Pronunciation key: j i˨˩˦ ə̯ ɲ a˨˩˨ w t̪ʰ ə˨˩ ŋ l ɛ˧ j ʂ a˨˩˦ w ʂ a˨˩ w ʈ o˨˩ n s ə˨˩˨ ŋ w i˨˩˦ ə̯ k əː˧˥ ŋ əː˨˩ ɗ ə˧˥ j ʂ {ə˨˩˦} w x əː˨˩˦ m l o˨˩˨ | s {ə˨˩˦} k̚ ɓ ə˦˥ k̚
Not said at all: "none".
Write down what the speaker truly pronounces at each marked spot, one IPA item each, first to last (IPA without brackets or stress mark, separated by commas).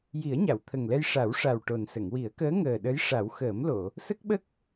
a˨˩˦, ə˦˥